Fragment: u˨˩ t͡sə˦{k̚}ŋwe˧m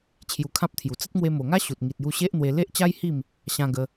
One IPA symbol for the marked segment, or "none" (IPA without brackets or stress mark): t̚